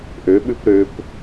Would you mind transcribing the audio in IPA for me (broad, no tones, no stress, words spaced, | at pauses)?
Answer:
ʔøɓʉp ɾøp